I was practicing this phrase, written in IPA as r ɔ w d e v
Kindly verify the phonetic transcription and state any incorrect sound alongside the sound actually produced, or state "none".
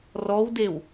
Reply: v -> w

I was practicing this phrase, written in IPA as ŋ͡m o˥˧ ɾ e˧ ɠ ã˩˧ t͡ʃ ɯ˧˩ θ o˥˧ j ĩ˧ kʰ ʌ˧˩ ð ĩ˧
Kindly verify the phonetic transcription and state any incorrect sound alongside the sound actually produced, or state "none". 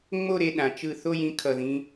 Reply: ɠ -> ɗ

